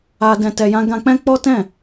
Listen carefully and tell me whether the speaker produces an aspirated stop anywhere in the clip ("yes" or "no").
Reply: no